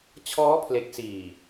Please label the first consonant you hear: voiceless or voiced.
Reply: voiceless